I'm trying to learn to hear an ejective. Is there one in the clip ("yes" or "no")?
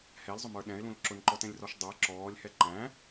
no